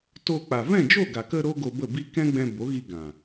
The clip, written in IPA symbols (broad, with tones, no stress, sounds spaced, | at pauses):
t o˧ k͡p a˨ v ɛ̃˦˨ d͡ʒ o˦˨ ɡ a˨ k ə˧ ɾ o˦ ɡ o˧ b ə˦˨ b i˦ k ɛ̃˦ ɡ͡b ɛ̃˧ b o˨˦ ɣ i˧ ɡ ã˨